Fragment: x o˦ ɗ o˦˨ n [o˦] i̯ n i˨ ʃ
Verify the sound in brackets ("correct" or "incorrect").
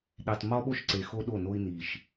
correct